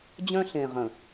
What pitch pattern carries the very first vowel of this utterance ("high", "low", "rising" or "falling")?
high